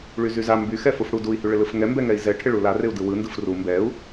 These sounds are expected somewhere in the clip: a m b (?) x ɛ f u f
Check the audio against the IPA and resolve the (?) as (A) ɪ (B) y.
B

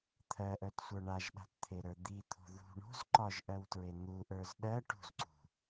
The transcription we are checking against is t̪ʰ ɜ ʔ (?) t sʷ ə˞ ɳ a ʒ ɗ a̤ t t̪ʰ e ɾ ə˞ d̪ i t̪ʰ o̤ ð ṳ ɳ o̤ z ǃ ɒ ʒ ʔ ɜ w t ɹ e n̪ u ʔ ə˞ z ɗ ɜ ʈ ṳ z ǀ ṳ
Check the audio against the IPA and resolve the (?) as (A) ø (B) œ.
B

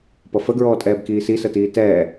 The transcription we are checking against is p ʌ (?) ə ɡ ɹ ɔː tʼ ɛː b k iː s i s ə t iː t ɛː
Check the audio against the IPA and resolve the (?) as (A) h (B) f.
B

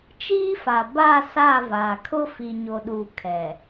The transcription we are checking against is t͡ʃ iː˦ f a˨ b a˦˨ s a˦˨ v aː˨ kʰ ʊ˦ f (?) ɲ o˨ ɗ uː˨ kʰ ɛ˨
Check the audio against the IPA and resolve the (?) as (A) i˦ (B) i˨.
B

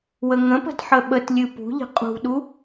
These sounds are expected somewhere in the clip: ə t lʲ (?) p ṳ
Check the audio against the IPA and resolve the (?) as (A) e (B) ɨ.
B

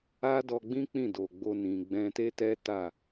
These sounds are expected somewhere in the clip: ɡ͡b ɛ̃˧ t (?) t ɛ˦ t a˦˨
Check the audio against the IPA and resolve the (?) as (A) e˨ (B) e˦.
B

